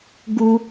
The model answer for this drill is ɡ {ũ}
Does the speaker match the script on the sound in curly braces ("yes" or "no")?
no